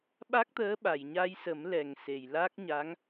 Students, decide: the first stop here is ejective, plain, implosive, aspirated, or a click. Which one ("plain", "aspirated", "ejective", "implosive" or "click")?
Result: implosive